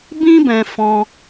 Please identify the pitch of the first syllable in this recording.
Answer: high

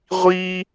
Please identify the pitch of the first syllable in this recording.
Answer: high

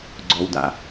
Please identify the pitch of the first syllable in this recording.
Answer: low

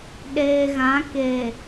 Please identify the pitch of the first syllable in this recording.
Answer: low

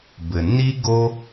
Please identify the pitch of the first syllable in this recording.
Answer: low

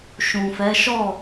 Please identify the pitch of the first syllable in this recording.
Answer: low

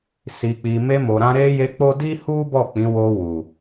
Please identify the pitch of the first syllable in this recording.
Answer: low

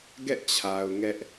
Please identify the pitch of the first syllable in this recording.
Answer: falling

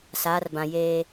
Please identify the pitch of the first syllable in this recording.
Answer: rising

